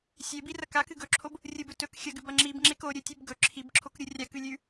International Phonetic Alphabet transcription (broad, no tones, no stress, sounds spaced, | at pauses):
sʲ e b i r ɐ k a k ɨ ɡ ɵ ǁʰ o b | rʲ ɨ b ɵ t ɵ k xʲ ɐ ɡ ʉ b ɐ ŋ͡ǁ i b ŋ͡ǁ e k o ɾʲ ɵ tʲ ʉ b ɡ ɵ ǁʰ i b ǁʰ o k ɾʲ u rʲ a k ʉ lʲ ʉ